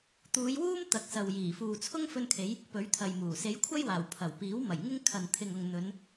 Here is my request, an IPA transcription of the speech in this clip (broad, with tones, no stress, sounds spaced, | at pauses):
t̪ uː˨˧ j w uː˥ m t̪ ɐ˨˥ k̚ s ɐ˨ w j iː˨˩ f uː˨ t͡sʰ ʊ˥ ŋ f ɵ˧ n kʰ e˨˧ j | p ɵ˨˥ ɥ t̪ʰ ɐ˨ j m uː˨˩ s e˨˥ j kʷʰ ɐ˥ j w aː˨˩ w pʰ ɐ˨˩ w p iː˨˥ w m ɐ˨˩ j ŋ ɪ˥ ŋ kʰ ɐ˨ n t̪ʰ ɪ˨ ŋ ʊ˨ ŋ n̪ ɵ˨˧ n